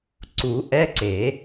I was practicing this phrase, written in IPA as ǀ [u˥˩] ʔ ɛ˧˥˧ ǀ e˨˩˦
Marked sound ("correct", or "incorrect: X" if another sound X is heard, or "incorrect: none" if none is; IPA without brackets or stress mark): incorrect: u˨˩˦